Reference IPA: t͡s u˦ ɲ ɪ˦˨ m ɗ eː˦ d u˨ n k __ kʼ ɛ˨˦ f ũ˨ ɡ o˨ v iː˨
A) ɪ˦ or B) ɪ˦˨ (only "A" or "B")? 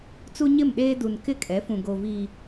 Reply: B